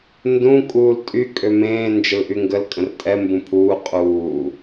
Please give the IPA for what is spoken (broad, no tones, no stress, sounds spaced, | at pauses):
n d ũ kʼ uː l tʼ y kʼ ø m ẽː n d͡ʒ ə l ʔ y ŋ ɡ ə l kʼ ə̃ r tʼ ɛ m b ũ pʰ uː qʼ uː